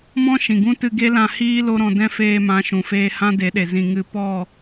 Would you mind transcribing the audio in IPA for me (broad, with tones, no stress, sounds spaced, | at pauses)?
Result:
m ɔ̃˦ ʃ ĩ˨ ɡ ũ˦ t ɨ˧ ɡ e˦ l ã˧ h iː˦ l o˦ ɾ ɔ̃˧ d ɛ̃˦ f eː˧ m ã˨˦ ʃ ũ˨ f eː˧ h ã˦ d e˨˦ ɗ e˨ z ĩ˨ ŋ ɨ˧ p ɔ˦˨